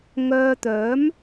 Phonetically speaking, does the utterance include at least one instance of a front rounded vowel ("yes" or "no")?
yes